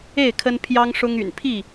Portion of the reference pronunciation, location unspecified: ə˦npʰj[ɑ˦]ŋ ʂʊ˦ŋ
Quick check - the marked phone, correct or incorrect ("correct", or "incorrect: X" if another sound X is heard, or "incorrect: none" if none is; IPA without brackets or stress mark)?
correct